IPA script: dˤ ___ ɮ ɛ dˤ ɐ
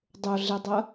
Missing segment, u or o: o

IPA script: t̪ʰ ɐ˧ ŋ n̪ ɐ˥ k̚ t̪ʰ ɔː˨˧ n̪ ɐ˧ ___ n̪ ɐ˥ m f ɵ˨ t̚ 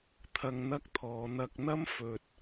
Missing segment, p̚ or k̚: k̚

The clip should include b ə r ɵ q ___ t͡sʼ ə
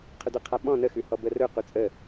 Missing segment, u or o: u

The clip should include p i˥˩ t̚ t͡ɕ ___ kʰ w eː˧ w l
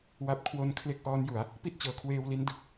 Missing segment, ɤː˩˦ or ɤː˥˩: ɤː˩˦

